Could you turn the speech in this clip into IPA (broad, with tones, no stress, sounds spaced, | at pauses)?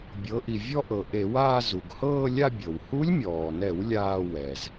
bʲ ɤ˩˧ ʔ i˩ vʲ ɔ˥˧ ʔ ɤ˩ ʔ e˧˩˧ w aː˥˧ z u˩ ɡ h ɤː˥˧ lʲ a˥˧ bʲ ɤ˩ w h u˧˥ lʲ mʲ ɔː˩ n ɛ˧˩˧ w lʲ aː˥˧ w ɛ˩ z